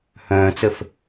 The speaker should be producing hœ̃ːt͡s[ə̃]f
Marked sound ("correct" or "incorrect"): incorrect